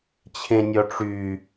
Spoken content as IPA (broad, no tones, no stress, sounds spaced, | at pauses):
t͡ɕʰ ẽ nʲ ɔ ʈ͡ʂ y